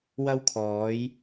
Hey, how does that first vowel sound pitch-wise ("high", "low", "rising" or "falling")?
high